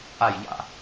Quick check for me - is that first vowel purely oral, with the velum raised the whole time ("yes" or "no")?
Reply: yes